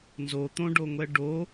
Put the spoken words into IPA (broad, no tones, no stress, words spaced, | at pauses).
nzo t̪õɖoŋʷɛ ɖo